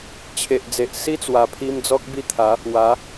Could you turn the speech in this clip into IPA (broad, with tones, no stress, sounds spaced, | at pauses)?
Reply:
t͡ɕʰ e˨ ʔ d͡z e˨ ʔ s i˦ t͡s w a˨˩ pʰ i˧ m d͡z ɔ˦ k̚ b i˥˧ t̪ʰ a˨˦ | w a˨˦